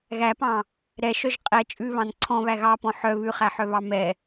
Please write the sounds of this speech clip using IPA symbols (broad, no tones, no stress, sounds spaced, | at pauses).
ɣ æ p ɑ̃ | ɾ ɛ ʃ œ ʒ qʼ ɛ t͡ʃʼ ʉ β ɑ̃ n ǀʰ ɔ̃ β æ ɣ ɑ p ɔ̃ ħ œ β ʉ χ æ ħ œ β ɑ m ɛ